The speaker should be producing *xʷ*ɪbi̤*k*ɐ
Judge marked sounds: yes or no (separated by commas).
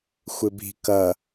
yes, yes